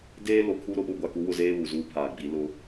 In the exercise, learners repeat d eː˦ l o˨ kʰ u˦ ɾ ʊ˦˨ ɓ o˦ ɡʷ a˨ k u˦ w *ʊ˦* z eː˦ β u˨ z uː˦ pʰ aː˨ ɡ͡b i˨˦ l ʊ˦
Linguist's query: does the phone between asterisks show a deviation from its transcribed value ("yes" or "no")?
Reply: yes